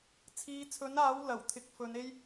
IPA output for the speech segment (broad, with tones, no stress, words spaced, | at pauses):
t͡sʰiː˨˧t͡sʰɵ˨˥naː˨˥w lɐ˨˩wt̪ʰɪ˨˥k̚ fɵ˨˧ne˥j